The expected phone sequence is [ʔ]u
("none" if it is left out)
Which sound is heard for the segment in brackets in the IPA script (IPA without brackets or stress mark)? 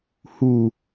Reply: h